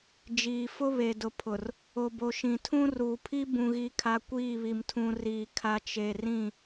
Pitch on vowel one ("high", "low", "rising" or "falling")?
low